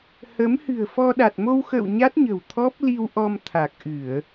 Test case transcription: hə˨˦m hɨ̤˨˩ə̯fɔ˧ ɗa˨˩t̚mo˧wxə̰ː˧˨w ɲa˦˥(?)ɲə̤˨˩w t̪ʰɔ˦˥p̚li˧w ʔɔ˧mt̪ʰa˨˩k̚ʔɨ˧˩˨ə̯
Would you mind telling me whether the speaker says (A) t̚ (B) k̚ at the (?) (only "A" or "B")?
A